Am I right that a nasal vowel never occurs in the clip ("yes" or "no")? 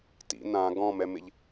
no